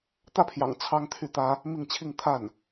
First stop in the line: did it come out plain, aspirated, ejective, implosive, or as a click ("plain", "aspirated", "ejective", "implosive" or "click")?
plain